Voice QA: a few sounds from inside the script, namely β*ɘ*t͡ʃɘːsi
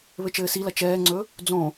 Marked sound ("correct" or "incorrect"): correct